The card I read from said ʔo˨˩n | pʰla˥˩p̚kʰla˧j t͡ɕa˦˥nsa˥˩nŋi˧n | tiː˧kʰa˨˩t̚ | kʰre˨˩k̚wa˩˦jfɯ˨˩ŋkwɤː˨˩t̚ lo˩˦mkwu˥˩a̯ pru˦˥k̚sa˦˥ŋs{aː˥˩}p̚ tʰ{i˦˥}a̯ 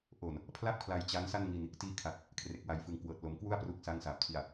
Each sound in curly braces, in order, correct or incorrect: incorrect: aː˨˩, incorrect: i˨˩

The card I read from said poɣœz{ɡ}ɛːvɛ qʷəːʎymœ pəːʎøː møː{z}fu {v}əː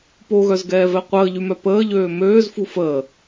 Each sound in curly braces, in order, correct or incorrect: correct, correct, incorrect: f

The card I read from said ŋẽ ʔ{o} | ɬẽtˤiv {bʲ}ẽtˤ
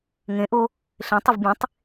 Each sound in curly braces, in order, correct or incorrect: correct, correct

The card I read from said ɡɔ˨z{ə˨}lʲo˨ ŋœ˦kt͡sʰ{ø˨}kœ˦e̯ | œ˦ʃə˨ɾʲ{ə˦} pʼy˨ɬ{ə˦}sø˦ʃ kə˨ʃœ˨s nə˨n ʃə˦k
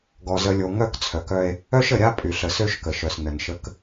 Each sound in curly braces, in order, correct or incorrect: correct, incorrect: œ˨, incorrect: a˦, incorrect: ə˨

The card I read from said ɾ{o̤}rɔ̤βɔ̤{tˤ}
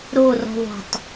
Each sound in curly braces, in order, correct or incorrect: incorrect: o, correct

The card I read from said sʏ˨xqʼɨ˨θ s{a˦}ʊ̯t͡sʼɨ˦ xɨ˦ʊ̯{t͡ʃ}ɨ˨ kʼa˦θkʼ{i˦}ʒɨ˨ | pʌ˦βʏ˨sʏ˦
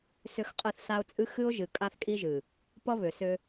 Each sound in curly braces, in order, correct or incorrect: correct, incorrect: ʒ, correct

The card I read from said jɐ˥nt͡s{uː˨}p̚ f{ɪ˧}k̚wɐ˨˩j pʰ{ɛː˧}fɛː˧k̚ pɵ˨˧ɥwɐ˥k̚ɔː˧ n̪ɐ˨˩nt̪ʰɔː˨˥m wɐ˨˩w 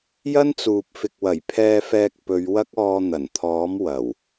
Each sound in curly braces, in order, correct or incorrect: correct, incorrect: ɪ˨, correct

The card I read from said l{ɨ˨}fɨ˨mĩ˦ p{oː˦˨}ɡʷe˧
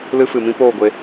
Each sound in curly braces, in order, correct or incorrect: incorrect: ɨ˦, correct

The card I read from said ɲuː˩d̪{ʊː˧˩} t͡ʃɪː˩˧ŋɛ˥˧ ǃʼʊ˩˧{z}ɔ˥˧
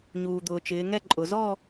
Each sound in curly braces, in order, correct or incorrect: incorrect: ʊː˩, correct

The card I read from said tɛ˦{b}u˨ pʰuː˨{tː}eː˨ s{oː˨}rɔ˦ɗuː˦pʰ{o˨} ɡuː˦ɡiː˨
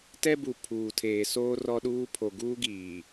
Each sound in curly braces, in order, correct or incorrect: correct, incorrect: tʰ, incorrect: oː˦, correct

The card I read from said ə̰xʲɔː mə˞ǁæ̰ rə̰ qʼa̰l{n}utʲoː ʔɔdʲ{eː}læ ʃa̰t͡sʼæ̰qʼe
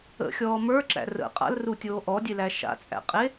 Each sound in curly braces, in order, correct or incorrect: incorrect: r, incorrect: e

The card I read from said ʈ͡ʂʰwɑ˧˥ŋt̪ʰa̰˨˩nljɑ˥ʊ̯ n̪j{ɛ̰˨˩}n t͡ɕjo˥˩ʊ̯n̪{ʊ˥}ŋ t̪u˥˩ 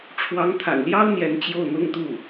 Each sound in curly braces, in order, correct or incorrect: incorrect: ɛ˧˥, correct

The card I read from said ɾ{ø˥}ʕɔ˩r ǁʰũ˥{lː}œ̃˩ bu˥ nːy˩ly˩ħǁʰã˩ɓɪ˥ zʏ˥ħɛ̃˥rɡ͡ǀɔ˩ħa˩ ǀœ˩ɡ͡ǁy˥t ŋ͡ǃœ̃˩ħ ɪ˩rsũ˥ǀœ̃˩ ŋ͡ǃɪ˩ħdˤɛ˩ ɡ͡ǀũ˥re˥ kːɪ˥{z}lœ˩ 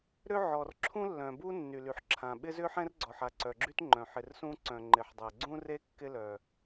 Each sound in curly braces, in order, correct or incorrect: correct, correct, incorrect: none

